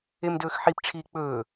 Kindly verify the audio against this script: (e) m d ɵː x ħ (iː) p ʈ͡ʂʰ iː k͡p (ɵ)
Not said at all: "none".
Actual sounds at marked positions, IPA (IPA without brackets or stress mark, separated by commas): e, i, ɵː